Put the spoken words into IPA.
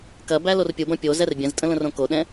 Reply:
k ɐ b æ l o r pʲ u b ɐ̃ pʲ o z ɛ r bʲ ɛ̃ z tʼ ə̃ l ə̃ r õ k o ɗ ɛ̃

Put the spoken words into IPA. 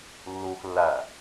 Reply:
lː uː x lː æ

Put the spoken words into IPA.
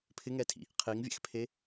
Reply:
pʰ ɪ ŋ ɛ tʰ ḭ | qʰ i ŋ vʲ ɛ̰ x pʰ e

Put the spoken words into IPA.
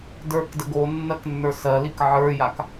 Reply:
d ə˞ k d ə ɡ o nː ɜ k nː ə˞ s ɜ l i k ʕ ə˞ j a k

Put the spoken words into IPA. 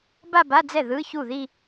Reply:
b a˥˧ b a˧˥˧ d͡z ɛ˥˩ ð ɯ˧˥˧ ç u˥˩ ð i˥˧

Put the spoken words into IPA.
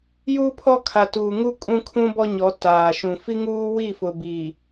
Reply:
j uː˦ pʰ ɔ˦ kʰ a˨ t uː˨ ŋ u˦ kʼ ũ˦ kʰ ũ˦ b ɔ˦ ɲ ɔ˨˦ t aː˨ ʃ ũ˨ f i˦ ŋ uː˦ w i˦˨ f ʊ˨ b i˨

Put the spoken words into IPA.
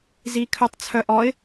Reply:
z i kʰ œ tˤ t͡sʰ œ ʔ ɔ ɪ̯

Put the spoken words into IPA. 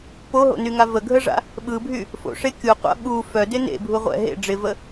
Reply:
p o ɦ o̰ n y ŋ a v ə ɡʱ ə ʐ a̰ | ɓ ɯ bʱ y | f o̰ ʂ e kʲ u qʷ a̰ ɓ u f œ d ɪ n ḛ bʱ u ʁʷ ɛ̰ ɦ ḛ ɖ͡ʐ ɪ v ə

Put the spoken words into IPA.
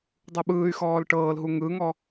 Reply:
dˤ u ɓ ɯː y̯ x ɔː l ʈ ɤː l ɦ u ŋ ɯ ŋ ɔ

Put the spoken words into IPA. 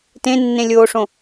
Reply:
t ẽ nː ẽ lʲ oː ʂ õ

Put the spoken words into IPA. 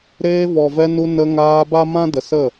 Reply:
ɾ eː˧ v ɔ˨ v ɛ˧ n u˧ n ə˧ ŋ aː˧ b a˦ m ã˦ d ə˨ s ə˦˨

